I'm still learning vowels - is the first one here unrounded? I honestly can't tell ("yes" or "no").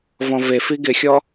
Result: no